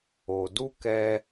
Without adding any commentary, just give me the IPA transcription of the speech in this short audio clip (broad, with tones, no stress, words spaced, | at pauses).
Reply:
o˨du˦kɛ˧